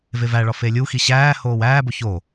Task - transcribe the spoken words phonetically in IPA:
v e v æ ɭ ɒ f e lʲ u x i ɕ æː h oː w æː b o ç o

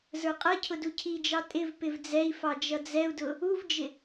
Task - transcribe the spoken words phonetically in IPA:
z ə˞ qʼ ʌ cʰ ʊ d u cʰ i d͡ʒ ɑ tʼ ɪ v p ɪ v d͡z ɛ i̯ f ɑ d͡ʒ ʌ d͡z ɛ u̯ d ʊ | u v d͡ʒ ɪ

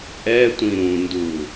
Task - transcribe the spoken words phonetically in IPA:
ʔ ɛ tʷ ĩ ɾ ũ n d u

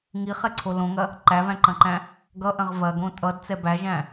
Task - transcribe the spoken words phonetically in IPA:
ŋ i χ ɛ ǀʰ o l õ ŋ ɐ | ǃ æ v æ̃ ǃ ɐ̃ ǃ æ̃ | ɡ ʌ ʔ ɐ̃ ʁ v ɐ ɡ õ tʼ ʌ d t͡s ɛ b æ ʒ æ̃

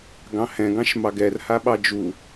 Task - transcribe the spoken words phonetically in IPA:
ɡ ɑ̃ h ɛ̃ ɡ ɑ̃ ʃ m ɑ ɡ ɛ r h a ɓ ɑ d͡ʒ u

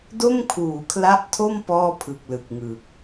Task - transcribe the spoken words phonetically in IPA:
d o˥˩ m kʰ uː˩˦ kʰ l a˦˥ ʔ tʰ o˥˩ m p ɔː˥˩ pʰ ɯ˨˩ k̚ l ɯ˨˩ k̚ ŋ ɯː˨˩ k̚

